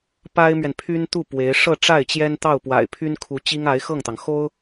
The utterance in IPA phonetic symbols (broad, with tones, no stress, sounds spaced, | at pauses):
p a˥ ɪ̯ m ɥ ɛ˨ n pʰ y˥ n t̪ u˥˩ p w e˧˥ ɪ̯ ʂ ɤ˥˧ ʈ͡ʂ a˥˩ ɪ̯ t͡ɕ j ɛ˥ n t̪ ɑ˥˩ ʊ̯ p w a̰˨˩ ɪ̯ pʰ y˥ n kʰ u˧˥ t͡ɕ i˥ ŋ a˧˥ ɪ̯ x ɤ˥˩ ŋ t̪ ɑ˩ ŋ x o˥ ʊ̯